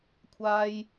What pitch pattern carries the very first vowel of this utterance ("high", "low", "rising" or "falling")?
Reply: high